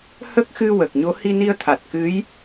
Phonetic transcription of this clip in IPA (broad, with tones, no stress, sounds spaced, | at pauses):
h ə˦˥ k̚ x ɨ˧ w ə˨˩ k̚ ɲ o˧˥ h i˧ n i˧ ə̯ t̪ʰ a˨˩ t̚ k ɨ˧˥ j